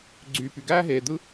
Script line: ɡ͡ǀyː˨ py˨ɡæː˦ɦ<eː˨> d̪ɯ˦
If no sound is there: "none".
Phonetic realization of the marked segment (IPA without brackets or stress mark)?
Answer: eː˨